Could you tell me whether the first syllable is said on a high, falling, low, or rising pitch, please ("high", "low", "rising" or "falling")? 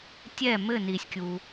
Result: falling